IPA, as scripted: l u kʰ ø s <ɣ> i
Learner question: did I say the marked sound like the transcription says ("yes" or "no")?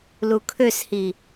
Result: no